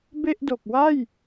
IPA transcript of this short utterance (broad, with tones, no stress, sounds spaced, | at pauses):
b e˥˩ ʔ d o˨˩ k̚ w a˥˩ j